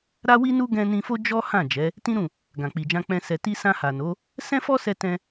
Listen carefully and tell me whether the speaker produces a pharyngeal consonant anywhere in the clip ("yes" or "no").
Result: no